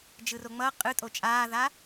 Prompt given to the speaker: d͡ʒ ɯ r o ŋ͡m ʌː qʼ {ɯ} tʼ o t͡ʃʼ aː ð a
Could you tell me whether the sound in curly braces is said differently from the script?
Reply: no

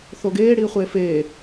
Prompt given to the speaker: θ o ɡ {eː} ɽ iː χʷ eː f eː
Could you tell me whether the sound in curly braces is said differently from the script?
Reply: no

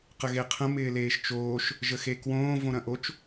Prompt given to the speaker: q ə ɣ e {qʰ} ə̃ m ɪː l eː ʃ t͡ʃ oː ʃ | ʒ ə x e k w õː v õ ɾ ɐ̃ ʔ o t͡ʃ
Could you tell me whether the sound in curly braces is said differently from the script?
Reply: no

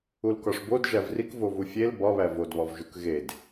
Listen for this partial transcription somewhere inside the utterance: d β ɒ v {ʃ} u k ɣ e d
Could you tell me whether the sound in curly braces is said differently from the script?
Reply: yes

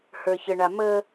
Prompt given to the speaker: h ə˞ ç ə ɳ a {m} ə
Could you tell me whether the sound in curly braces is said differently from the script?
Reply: no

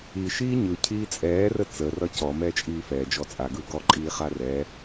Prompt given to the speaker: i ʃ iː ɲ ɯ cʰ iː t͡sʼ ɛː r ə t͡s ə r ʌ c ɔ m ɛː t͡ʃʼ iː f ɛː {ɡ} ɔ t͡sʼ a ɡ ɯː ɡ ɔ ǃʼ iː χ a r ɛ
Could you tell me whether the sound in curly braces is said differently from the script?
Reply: yes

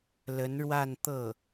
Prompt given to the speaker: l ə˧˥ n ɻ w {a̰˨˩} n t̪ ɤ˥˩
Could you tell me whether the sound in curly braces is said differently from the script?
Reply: yes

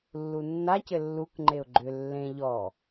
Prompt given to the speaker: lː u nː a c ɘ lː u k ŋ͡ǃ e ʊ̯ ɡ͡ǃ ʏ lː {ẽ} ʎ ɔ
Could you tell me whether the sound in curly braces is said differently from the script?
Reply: no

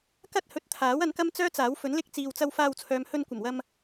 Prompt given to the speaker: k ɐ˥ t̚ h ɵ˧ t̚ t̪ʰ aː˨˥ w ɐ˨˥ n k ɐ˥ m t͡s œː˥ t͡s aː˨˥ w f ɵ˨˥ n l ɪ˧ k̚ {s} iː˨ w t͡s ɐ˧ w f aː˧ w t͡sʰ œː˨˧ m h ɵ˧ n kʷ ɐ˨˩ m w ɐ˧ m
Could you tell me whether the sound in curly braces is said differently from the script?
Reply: yes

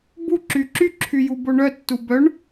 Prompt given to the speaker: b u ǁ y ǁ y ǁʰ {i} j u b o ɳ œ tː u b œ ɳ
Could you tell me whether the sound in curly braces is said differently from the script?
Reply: yes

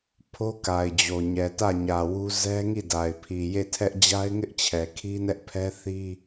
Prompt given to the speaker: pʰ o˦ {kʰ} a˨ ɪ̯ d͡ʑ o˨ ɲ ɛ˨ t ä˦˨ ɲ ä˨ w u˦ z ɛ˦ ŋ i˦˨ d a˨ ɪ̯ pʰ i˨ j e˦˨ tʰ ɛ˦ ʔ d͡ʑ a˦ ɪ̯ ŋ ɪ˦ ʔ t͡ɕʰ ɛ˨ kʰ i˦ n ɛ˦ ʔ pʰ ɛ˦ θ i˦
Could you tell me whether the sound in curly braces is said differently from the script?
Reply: yes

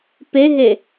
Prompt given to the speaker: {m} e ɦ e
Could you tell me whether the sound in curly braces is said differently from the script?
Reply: yes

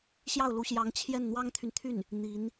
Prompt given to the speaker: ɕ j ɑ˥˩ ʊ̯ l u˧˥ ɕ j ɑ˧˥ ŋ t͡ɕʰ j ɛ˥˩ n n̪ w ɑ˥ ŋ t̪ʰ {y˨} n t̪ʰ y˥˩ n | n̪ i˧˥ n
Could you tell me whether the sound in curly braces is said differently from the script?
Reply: no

